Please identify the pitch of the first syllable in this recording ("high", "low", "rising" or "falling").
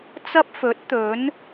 high